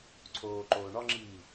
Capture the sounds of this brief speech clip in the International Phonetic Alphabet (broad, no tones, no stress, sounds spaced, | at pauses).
ǀʰ oː ǃ oː ɳ ɒ ŋ͡ǁ iː